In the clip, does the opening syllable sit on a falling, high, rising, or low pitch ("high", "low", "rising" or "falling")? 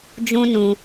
high